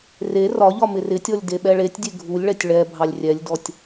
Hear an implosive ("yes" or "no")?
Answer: yes